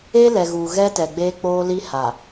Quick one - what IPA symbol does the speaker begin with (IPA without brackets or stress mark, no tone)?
e